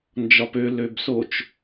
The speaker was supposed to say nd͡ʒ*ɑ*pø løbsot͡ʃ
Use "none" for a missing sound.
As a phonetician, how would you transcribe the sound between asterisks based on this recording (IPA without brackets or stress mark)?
ɒ